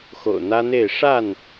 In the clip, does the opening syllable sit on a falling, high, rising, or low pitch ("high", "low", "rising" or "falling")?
low